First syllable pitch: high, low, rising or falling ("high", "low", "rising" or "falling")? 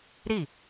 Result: falling